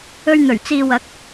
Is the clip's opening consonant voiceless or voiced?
voiced